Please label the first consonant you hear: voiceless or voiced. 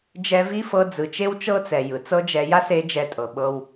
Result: voiced